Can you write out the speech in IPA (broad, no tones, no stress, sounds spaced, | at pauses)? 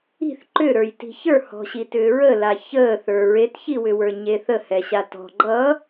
i̤ θ ǃ ʏ ɾ ə˞ j t i̤ ç ə˞ h ɔ̤ ɕ i t ʏː ɹ ə l a ç əː θ ə˞ ɹ e t ç i w ʏ w ə˞ ɲ e θ ə h ɛ ɕ a t ɔ̤ ɡ͡ǃ ʌ